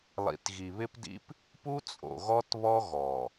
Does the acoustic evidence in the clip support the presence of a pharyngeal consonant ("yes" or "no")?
no